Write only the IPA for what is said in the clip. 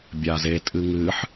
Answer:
bʲaze tʼɨŋɨħ

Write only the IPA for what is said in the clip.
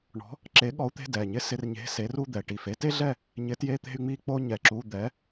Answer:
ɳɔ̤˨˥ | ǁe˨˥ɠɔ˨˥u̯t̪e̤˧˥˧ dɛ˩˧˩ɲɪ˥sɪ˧˥˧rɲe̤˧˥˧ se˨˥ru˥˧d̪ɛ˩˧˩ ʈi˧˩fe˥te˥ɮɛ˥˧ | ɲɪ˨˥tje˧˥˧ t̪e̤˥˧y̯ŋ͡mi˥˧ k͡po˥ ɲɛ˧˩ǁu˧˥˧ d̪ɛ˨˥

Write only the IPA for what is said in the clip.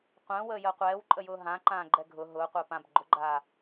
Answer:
qʷə̃ːwəːjəː qʷɛːwǃʼəjʊː ɦãǃãːɡ͡ǃɛ ɡʱʊ ɦʊːqʷəː pãb ɡ͡ǃʊɡ͡ǃaː

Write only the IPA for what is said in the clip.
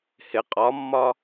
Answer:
hɪ qʼɒmːɒ

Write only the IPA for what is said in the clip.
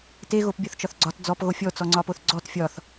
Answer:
te ɣopbʲɒθt͡ʃɒθɡ͡ǀɒt d͡zɔp ɣofʲɔ t͡sɔŋ͡ǀɒpoθɡ͡ǀɔt fʲɒθ

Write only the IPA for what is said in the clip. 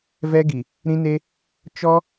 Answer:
vɛ˦ɡi˨ | ɾĩ˦ne˦ | t͡ʃɔ˦

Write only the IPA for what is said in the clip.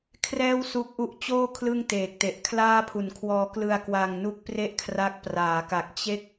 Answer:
kʰrɛː˥˩wsu˦˥k̚ʔu˦˥ʔt͡ɕoː˥˩ kʰlɯ˥˩ŋteː˨˩k̚te˨˩ʔkʰlaː˥˩ pʰu˨˩nkʰwɔː˧klɯ˧a̯ kwa˧ŋ nu˦˥k̚pre˥˩ʔkʰra˦˥k̚ praː˩˦ka˨˩k̚ t͡ɕe˥˩k̚

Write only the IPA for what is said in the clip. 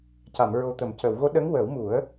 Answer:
ca˨˩˨m ɹo˨˩t̪ə˨˩˨mcə˨˩˨w ɣo˧˥ɗə˧˥ŋ wə˨˩˦wmu˨˩˦ə̯

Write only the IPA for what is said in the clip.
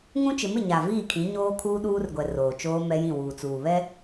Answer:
ŋũ˦t͡ʃɪ˨˦mɪ˨ ɲa˨viː˦˨kʰĩ˨˦ ɲoː˦kʰuː˦ɗuː˦rɡʷɛ˨ roː˨t͡ʃoː˦ mɛ˦jĩ˦˨ wuː˨t͡suː˨βɛ˦

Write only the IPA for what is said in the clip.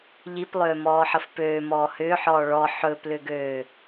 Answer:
ʎiplˠʏːmɔːħəf pøːmɔː hʏːħɔː ɭɔ ħɵplʏɡøː

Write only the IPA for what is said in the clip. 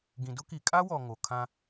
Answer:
ɡĩ˨dʊ˦ki˨ kʼa˦wɔ˨ ŋo˨ kʰã˦

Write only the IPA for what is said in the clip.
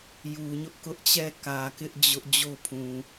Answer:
ju˨ɲʊ˦ʔkʊ˦ʔt͡ɕɛ˦˨ kä˨kɪ˦ʔ d͡ʑʊ˦ʔ d͡ʑo˦pʰũ˨

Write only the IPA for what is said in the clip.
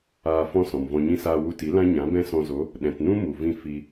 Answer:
aː˧ fɔ̃˦sɔ̃˨mvɔ̃˧ɲĩ˦ saː˧wu˧ti˨˦ lã˦ɲã˨˦ bɛ̃˦sɔ̃˧zo˨˦ | ɗɛ̃˨tnũ˦ mu˨vĩ˦˨ fi˧

